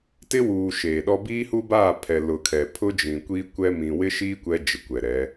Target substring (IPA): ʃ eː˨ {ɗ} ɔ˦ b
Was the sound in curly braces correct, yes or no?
yes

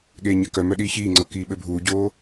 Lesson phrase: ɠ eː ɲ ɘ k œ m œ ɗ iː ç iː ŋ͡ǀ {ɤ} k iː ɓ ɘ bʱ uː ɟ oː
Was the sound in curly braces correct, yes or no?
yes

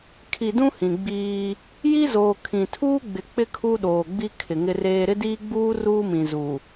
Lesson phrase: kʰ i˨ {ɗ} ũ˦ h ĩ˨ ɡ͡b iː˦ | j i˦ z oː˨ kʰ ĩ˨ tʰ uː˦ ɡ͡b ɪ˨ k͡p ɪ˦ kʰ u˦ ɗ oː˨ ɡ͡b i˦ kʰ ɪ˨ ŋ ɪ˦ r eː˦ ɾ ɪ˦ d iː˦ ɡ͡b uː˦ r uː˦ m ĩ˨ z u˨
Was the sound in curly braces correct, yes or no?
no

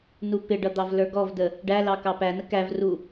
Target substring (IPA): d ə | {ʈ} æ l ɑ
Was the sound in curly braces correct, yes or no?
no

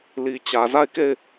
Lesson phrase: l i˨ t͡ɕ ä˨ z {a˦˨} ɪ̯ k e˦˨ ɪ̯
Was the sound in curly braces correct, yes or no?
yes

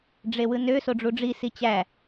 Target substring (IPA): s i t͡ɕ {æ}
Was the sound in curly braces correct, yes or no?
yes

